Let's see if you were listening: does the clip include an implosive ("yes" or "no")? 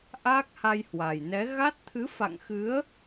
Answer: no